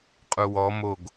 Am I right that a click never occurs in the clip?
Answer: yes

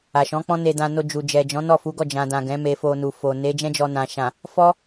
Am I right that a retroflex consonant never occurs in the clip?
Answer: yes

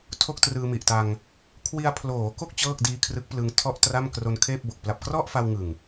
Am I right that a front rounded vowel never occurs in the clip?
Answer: yes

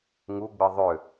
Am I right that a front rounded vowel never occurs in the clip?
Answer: no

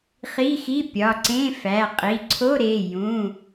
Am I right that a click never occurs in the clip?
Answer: no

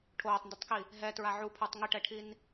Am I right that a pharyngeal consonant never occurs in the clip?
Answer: no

